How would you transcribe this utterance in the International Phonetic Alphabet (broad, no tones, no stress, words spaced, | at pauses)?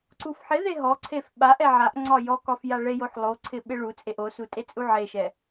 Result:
ǀufħɪðe ɦɔǀʰef ɓaʔ ɛʕaʔŋ͡ǀɒ jɔkɒf jaɭejoħ lˠoǀʰɪ ɓɪɭut͡sʼeʔ osu tʼet͡sʼuʕeʃɛ